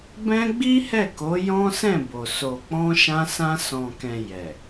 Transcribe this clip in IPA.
b ɛ̃˦ ɡ͡b i˦ h ɛ˦˨ k o˨˦ j ɔ̃˦ s ɛ̃˦˨ b o˨ s o˨ k͡p ɔ̃˧ ʃ ã˧ s ã˧ s ɔ̃˨ k ɛ̃˨ j ɛ˨

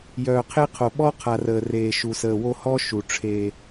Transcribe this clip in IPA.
j œː˨ qʰ e˦ qʰ o˨ ɓ ɔ˦ qʰ a˨ r əː˨ r eː˨ ʃ u˨ s əː˨ w o˦ h ɔ˦ ʃ u˨ ʈ͡ʂʰ e˦

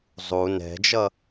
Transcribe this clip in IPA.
zˤ u n ɛ̤ d͡ʒ ʌ

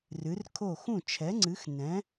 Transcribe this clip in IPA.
r ɨ˨˥ r kʰ o˥˨ x ũ˥˨ t͡ʃʰ ɛ˨˥ ŋ͡ǀ ɨ˨˥ x n ɛ̃˨˥

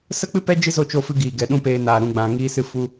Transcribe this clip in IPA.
s ə˦ k͡p ɨ˦ p ɛ˦ d͡ʒ ɨ˦ z o˦˨ t͡ʃ o˧ f ɨ˧ ɡ iː˨ ɡ ɛ˨ ɗ ũ˦ p eː˧ n aː˨ ɾ ũ˨ ɡ͡b ã˨ ŋ iː˧ s ɨ˧ f u˧

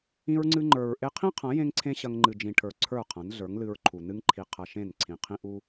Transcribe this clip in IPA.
ĩ˧ ɹ ŋ͡ǀ ɨ˧ ŋ͡ǃ ə˞˨ ɹ ʔ e˧ qʰ ĩ˦ qʰ ɐ̃˨˦ j ẽ˦ ŋ ǀʰ ẽ˦ ɕ ɐ˧ ŋ ŋ͡ǃ ɨ˨ d͡ʒ ĩ˨ ʈʰ ə˞˨ ǀʰ ə˞˦˨ qʰ ɐ̃˨˦ n ɮ ə˞˨˦ ŋ l ɨ˧ ɹ ǃʰ u˨ n ɨ˦ ŋ ǃʰ i˧ qʰ ɐ˧ ʃ ẽ˦˨ n ǀʰ ĩ˨ qʰ ĩ˦ ʔ u˦

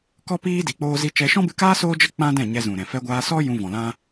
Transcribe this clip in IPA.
k ɔ˦ p iː˦ d i˨ k͡p oː˦ z i˦ t͡ʃ ɛ˦ ʃ ɔ̃˦ b ɨ˧ k aː˦ s oː˦ d͡ʒ ə˦ k͡p ã˦ d ɛ̃˦˨ ɲ ɛ˧ z ũ˨ ɾ ɛ̃˨ f ɛ˧ ɡʷ aː˧ s ɔ˦ j ũ˧ v ɔ̃˨ l ã˦

